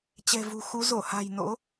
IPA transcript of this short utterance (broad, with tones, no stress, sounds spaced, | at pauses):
t͡ɕ ɛ̤˨˩ v ṳ˨˩ x u˨˦ z o˧˩ h a̤˨˩ j n o̰˧˥